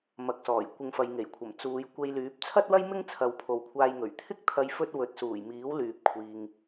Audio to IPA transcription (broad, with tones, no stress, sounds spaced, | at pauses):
m ɐ˨˥ k̚ s ɔː˨˩ j kʷ ɪ˧ ŋ f ɐ˨˧ j ŋ e˨˩ j kʷʰ ɐ˨˩ m t͡s uː˨˧ j kʷ e˧ j l yː˨˥ p̚ t͡sʰ ɐ˥ t̚ w ɐ˥ j m ɪ˥ ŋ t͡sʰ ɐ˨ w pʰ o˨ w kʷʰ aː˧ j ŋ ɵ˨˩ ɥ t̪ʰ ɪ˥ k̚ t̪ʰ ɐ˧ j f ɵ˥ t̚ w ɵ˨ t̚ s uː˨˩ j m iː˨˥ w l yː˨ p̚ kʷʰ iː˨ ŋ